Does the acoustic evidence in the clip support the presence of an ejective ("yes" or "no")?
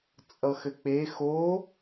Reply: yes